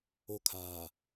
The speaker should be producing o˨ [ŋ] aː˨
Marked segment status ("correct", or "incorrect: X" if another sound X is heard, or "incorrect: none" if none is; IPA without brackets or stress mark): incorrect: kʰ